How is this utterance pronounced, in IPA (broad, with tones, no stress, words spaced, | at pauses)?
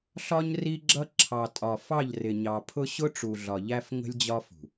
ɬɒ˦ɲ ri˦ɡ͡ǁʌ˦ ǁʰɑ˨tʼɒ˨ fɑ˦˨ʎrɪ˨ɲɑ˨pʰʊ˦ ɕʊ˦ʈ͡ʂu˨ ɮɒ˨ʎæ˦f ŋə̤˦lʲd͡ʑɒ˦fṳ˨